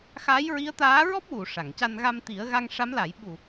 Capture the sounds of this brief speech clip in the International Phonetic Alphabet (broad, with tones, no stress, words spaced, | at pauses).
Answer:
xaː˧˥jɹi˧˥ə̯t̪aː˧˥ ɹɔ˦˥p̚wu˨˩˨ ʂa˨˩˨ŋca˧n ɣa˧mt̪i˨˩˦ə̯ɣa˧ŋ ʂa˧˥mla˨˩˦j ɓu˨˩